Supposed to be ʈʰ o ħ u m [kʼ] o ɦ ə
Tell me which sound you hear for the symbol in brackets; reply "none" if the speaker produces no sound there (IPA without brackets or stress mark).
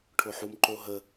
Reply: ǃ